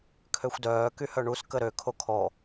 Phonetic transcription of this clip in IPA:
kʰ ø xʷ d œː k y h œ ɳ u s k ə ɾ ø kʰ o kʰ ɔ

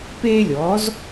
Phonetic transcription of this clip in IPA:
p eː˥ lʲ ɔː˩˥ z

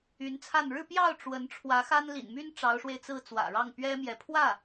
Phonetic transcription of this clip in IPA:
y˧˥ n t͡sʰ a˥˧ n ɻ ɻ̩˥˧ p j ɑ˥˩ ʊ̯ ʈ͡ʂ w ə˧˥ n ʈ͡ʂʰ w ä˧˥ x a˥ n l ḭ˨˩ n m y˥ n ʈ͡ʂ ɑ˧˥ ʊ̯ ʂ w e˧ ɪ̯ t͡s ɹ̩˥˩ t͡s w ä̰˨˩ ɻ ɑ˥˩ ŋ p ɥ ɛ˥ m j ɛ˧˥ pʰ w ä˥˩

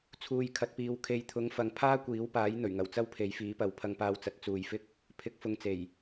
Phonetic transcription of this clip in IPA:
t͡sʰ uː˨ j kʰ ɐ˨ t̚ p iː˨ w kʰ e˨ j t̪ʰ ʊ˨˥ ŋ f ɐ˨ ŋ pʰ aː˥ kʷ iː˨˥ w p aː˨˥ j n̪ ɵ˨˩ ɥ ŋ ɐ˨˩ w t͡s ɐ˥ w pʰ e˨˥ j f iː˨˥ p ɐ˨˧ w pʰ ɐ˧ ŋ p aː˧ w t͡s ɐ˨˥ t̚ t͡s uː˨ j f ɪ˥ k̚ | pʰ ɪ˨˥ k̚ f ʊ˨˧ ŋ t͡s e˨˩ j

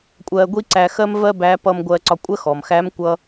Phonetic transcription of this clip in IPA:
kʷʼ ɜː˧ ɡʷ i˥ ǀ æ˧ x ɜ˥ m v ɜ˥ b æː˧˥ p ʌː˧ m ɡʷ ɜː˧ ǀ ɒ˧ kʷʼ ɜ˥ x ɔ˩ m x æː˧˥ m kʷ ʌ˧

